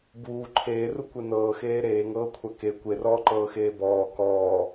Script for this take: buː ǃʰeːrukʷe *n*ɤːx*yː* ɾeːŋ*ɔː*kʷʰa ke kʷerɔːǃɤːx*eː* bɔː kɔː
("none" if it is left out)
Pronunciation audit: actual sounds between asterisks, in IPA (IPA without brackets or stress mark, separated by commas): n, eː, ɤː, eː